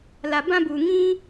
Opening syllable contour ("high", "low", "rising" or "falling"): low